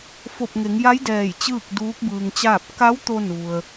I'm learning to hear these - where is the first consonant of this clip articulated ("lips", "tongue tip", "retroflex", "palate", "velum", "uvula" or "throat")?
lips